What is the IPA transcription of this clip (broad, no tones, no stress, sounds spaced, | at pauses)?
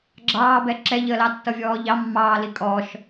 ɡ͡ǁ ɑː b ɛ ǁ ɛ ʎ əː l ɑ tː ʌ vʲ ɔː ʎ ɑ mː ɑː l i kʼ ɔ ʃ